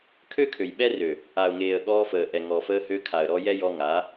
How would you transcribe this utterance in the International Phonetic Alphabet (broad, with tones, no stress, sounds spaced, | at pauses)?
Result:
kʰ ø˦ kʰ ø˨ j ɓ ɛ˦ r ø˨ | a˨ ʊ̯ ŋ eː˨ ə̯ ɠ ɔː˧ f əː˨ ʔ ɛ˨ ŋ ɔ˨ f əː˧ h ø˧ kʰ a˨ ə̯ ɾ ɔ˧ j ɛ˦ j ɔ˧ ŋ a˨˦